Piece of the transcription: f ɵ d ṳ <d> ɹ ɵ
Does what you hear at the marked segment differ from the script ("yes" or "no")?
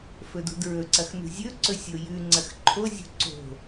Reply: no